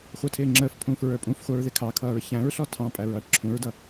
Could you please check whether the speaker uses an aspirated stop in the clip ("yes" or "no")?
yes